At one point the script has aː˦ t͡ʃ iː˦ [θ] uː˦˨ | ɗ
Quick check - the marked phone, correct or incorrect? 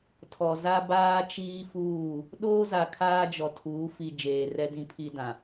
incorrect